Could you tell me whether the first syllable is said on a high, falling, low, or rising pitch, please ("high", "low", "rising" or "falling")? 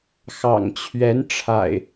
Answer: low